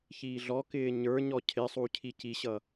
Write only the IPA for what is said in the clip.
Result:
ç iː ɮ ɔ k ɪː ɲ ə˞ ɲ ɔ cʰ ɪ sˤ u cʰ i c i ɕ ʌ

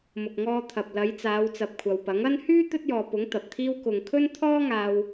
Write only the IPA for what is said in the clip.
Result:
m ʊ˨ k̚ ŋ ɔː˧ t̪ʰ ɐ˨ p̚ l ɐ˨˧ j t͡s aː˨˧ w t͡s ɐ˨ p̚ kʷʰ ɐ˨ w p ɐ˨˥ ŋ ɐ˥ n h yː˥ t̪ ɵ˥ t̚ j ɔː˨ p ʊ˨˥ ŋ t̪ ɐ˨ p̚ t̪ʰ iː˥ w k ʊ˨ ŋ kʰ ɵ˥ n t̪ʰ ɔː˥ ŋ aː˧ w

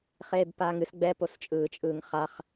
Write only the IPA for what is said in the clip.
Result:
χ eː b p aː ŋ ɨ s ɡ͡b ɛ p o s t͡ʃʼ ɯː t͡ʃʼ ɯː ŋ χ a χ

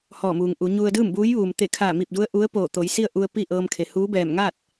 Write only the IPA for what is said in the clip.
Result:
h ɔː˧˩ m uː˩ ŋ ʔ u˩˧ ɲ u˧ ə̯ d ɯː˥˨ m b uː˧˥ j ʋ uː˩ m t̪ e˧˩ kʰ a˧˩ m i˧˩ p̚ d u˧˥ ə̯ ʔ u˧˥ ə̯ p oː˧˩ t̪ o˩˧ j s i˥˨ ə̯ ʔ u˧ ə̯ p i˥˨ ʔ ɤː˧ m kʰ e˩˧ h uː˧˥ b ɛː˧˩ m ŋ a˥˨ t̚

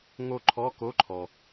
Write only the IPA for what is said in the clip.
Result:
ŋ o˥˧ ǃʰ ɔ˧˥˧ k o˧˥˧ ǃʰ ɔ˩

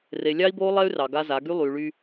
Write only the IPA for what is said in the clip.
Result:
r e˨ lʲ ɑ˦ i̯ b oː˦ lˠ ɛ˦ y̯ r ɑ˨ ɡ a˦ z a˨˦ ɡ y˦ lˠ yː˨ ɭ yː˦

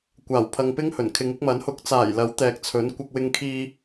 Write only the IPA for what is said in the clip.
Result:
kʷ aː˨˩ w pʰ ɐ˨ ŋ p ɪ˥ ŋ h ɵ˨˩ n kʰ ɪ˨˧ ŋ ɪ˧ k̚ m ɐ˨˥ n h ʊ˨˥ k̚ t͡s aː˨˩ j l ɐ˨˥ w t̪ ɛː˨ k̚ t͡sʰ ɵ˨˥ n kʷ ɐ˧ k̚ w ɪ˧ ŋ kʰ iː˧

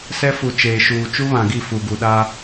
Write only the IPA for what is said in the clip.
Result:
s ɛ˦ f u˨ t͡ʃ eː˨ ʃ uː˨ t͡ʃ u˦ β ã˨ ɡ i˦˨ f u˨ ɡ u˨ ɗ a˦

